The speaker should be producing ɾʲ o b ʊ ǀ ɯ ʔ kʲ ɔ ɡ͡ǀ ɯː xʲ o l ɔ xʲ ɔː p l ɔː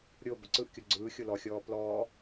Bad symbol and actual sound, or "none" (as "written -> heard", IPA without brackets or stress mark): none